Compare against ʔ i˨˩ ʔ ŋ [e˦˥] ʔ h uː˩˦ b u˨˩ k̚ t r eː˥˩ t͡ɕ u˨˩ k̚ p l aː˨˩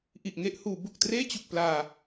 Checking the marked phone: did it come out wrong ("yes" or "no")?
yes